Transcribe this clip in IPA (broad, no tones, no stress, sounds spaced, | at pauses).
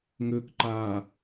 ŋ ʏː k ǃ aː